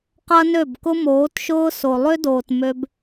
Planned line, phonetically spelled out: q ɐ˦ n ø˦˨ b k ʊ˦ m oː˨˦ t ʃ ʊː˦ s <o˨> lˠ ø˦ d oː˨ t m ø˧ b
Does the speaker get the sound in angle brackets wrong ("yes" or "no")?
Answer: no